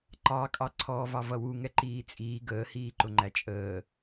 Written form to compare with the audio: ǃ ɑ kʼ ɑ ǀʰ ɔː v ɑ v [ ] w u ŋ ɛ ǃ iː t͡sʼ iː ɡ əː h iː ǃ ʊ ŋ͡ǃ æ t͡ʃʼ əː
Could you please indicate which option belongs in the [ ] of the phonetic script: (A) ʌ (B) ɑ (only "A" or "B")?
A